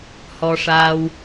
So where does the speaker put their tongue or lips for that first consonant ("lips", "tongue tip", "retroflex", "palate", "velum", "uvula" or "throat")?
throat